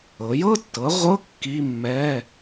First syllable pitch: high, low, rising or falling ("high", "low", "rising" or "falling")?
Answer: rising